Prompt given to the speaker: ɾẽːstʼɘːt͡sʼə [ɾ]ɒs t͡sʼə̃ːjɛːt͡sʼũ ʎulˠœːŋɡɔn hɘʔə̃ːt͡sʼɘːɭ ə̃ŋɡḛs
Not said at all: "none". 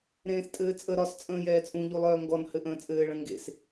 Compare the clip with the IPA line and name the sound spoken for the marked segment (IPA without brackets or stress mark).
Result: ɾ